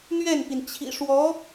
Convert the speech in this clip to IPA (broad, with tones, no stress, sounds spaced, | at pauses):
n̪ ɥ ɛ˥˩ n p i˩ n t͡ɕʰ ḭ˨˩ ʂ w ɔ˧˥